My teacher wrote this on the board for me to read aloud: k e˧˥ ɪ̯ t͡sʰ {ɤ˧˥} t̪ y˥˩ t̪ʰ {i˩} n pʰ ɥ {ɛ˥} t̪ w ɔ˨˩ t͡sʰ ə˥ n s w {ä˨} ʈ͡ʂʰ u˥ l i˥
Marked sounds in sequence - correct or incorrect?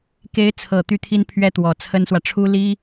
incorrect, incorrect, correct, correct

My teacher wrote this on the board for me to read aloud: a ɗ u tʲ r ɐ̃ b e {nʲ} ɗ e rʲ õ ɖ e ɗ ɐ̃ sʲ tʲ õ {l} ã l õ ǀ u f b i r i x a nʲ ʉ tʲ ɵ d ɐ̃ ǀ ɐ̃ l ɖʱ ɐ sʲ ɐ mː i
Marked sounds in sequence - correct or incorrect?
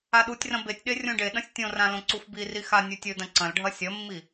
incorrect, incorrect

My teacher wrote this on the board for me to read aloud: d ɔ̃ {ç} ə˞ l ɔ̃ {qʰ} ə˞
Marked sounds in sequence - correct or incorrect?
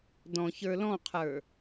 correct, correct

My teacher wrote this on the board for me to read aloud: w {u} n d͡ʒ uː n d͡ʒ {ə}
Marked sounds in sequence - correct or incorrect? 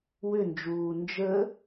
incorrect, correct

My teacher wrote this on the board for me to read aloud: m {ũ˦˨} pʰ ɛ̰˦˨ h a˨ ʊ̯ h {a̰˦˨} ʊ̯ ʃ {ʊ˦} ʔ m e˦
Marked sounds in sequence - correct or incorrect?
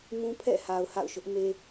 incorrect, correct, correct

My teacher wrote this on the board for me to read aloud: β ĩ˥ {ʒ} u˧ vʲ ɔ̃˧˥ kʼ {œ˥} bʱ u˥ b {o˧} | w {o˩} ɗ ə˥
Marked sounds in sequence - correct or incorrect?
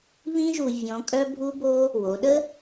correct, correct, incorrect, incorrect

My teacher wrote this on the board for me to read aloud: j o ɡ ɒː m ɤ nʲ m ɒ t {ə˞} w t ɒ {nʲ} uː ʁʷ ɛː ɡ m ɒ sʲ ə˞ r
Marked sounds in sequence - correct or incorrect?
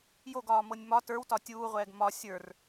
correct, incorrect

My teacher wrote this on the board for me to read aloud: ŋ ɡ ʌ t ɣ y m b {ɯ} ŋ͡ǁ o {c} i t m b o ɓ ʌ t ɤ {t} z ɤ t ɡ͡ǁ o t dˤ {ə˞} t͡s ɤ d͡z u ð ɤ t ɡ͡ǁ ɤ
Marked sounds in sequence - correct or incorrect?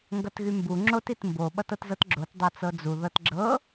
incorrect, incorrect, correct, incorrect

